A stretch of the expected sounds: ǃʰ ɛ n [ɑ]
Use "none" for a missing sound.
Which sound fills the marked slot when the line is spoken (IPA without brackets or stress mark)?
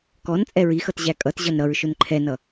ʌ